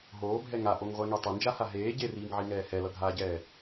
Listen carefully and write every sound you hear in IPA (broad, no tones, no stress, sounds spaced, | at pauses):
ɦ oː bʱ ɛ ŋ a ʔ o ŋ ʁʷ ɛ ŋ e tˤ ʌ n d͡ʒ a h a ɦ eː ɟ e r iː ŋ ʕ i ŋ ɛː h ɛ l ʌ ɡʱ aː ɟ ɛː